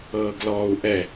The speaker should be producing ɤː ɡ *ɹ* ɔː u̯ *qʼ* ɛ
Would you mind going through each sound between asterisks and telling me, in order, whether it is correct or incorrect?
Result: incorrect: l, incorrect: ʔ

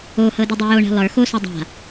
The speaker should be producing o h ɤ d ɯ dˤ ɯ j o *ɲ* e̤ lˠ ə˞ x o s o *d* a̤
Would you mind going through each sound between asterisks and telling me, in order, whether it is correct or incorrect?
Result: incorrect: ɳ, incorrect: dˤ

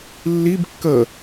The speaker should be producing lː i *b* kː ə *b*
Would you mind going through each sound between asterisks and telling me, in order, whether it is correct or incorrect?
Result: correct, incorrect: none

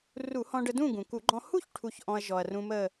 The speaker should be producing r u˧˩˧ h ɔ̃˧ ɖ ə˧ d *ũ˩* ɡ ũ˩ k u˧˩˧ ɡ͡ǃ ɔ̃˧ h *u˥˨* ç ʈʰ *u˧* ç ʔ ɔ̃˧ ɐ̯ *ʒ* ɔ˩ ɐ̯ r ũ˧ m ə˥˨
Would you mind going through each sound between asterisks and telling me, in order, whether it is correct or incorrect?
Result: incorrect: ũ˥˨, correct, correct, correct

